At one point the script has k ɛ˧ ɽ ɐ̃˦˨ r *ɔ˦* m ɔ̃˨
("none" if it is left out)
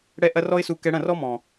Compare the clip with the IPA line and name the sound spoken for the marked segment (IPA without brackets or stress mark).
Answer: ɔ˦